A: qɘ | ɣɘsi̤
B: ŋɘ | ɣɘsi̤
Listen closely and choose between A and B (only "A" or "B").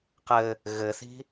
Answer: A